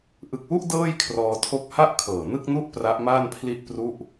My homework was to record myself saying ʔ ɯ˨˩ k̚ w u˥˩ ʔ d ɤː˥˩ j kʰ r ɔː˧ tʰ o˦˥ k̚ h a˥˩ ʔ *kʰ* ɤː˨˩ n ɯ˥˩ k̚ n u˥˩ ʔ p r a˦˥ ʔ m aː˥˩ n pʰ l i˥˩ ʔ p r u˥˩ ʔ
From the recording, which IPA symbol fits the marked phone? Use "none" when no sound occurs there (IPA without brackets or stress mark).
kʰ